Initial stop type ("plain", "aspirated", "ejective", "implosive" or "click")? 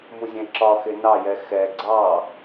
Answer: click